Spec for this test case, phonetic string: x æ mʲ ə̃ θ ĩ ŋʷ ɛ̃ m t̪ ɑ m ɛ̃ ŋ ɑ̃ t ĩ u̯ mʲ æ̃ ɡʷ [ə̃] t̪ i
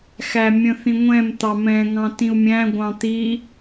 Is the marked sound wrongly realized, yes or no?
yes